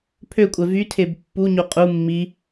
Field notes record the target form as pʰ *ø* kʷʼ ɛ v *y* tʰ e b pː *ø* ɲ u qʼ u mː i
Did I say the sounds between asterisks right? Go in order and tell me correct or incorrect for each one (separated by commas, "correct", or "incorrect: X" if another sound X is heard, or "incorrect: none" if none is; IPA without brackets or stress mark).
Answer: correct, correct, incorrect: u